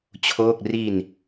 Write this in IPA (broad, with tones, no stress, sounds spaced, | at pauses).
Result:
t͡ɕʰ oː˥˩ k̚ r i˧ n